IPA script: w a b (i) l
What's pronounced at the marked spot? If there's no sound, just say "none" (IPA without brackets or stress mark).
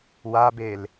e